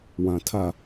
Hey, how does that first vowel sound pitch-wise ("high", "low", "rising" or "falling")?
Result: low